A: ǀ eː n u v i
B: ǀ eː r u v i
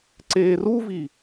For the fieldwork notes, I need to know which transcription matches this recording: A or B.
B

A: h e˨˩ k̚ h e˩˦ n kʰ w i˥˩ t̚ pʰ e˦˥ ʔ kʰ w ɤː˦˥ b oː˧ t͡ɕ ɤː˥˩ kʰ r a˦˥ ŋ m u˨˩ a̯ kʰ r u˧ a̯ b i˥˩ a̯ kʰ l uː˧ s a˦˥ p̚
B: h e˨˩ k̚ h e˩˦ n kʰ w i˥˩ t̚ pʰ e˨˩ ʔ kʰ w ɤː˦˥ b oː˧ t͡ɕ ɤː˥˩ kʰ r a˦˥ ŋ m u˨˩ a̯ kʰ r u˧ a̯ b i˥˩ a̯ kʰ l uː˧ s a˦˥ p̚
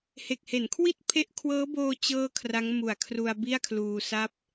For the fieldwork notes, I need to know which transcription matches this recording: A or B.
A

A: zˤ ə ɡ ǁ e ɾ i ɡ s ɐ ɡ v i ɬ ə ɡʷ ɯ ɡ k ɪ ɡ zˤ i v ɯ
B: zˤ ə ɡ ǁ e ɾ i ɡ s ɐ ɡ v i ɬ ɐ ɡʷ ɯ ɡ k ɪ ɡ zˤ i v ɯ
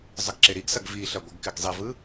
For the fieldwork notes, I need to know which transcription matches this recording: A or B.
B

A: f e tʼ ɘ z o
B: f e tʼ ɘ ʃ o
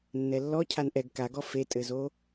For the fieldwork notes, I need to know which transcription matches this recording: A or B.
A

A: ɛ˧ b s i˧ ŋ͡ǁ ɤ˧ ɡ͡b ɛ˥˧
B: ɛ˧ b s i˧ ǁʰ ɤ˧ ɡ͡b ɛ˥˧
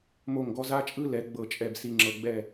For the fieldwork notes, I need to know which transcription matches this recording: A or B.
A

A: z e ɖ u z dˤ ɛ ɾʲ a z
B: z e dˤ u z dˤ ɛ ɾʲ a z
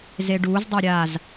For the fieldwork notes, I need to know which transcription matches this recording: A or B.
A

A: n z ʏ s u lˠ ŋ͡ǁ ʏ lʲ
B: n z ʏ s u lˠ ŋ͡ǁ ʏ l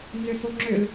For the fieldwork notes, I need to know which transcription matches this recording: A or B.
B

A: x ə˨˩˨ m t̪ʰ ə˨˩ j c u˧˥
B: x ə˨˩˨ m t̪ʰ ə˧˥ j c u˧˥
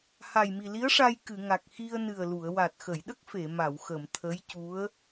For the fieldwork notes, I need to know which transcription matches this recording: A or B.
B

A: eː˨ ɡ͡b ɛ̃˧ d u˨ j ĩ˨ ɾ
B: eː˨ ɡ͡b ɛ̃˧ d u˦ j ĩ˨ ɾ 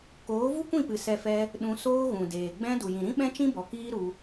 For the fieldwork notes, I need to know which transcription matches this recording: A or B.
A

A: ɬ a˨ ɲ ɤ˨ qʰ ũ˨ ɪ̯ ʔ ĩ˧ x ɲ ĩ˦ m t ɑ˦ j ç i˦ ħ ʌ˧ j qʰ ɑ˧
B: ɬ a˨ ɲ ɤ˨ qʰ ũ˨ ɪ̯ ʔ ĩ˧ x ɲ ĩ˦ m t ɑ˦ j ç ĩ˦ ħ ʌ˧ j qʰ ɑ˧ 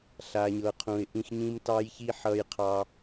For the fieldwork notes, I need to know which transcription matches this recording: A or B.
A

